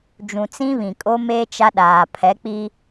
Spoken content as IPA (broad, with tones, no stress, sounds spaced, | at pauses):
d͡ʒ ũ˨ t͡s ĩ˦ β ĩ˨ kʼ o˦ m e˦ t͡ʃ a˦ ɗ aː˨ pʰ ɛ˨˦ k͡p i˦